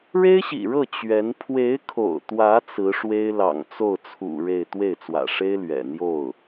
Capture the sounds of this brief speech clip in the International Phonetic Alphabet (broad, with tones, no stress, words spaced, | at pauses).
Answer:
ɻe˥ɪ̯ɕḭ˨˩ɻɤ˥˩ t͡ɕɥɛ˧˥n pʰwe˧˥ɪ̯kʰo̰˨˩ʊ̯t̪wä˧˥ t͡sɹ̩˧˥ʂwe˥ɪ̯ lɑ̰˨˩ŋt͡so˥˩ʊ̯t͡sʰṵ˨˩ ɻe˥˧ɪ̯ t̪we˥˩ɪ̯t͡swä̰˨˩ ʂe˥ɪ̯ lɥɛ̰˨˩ n̪jo˥˩ʊ̯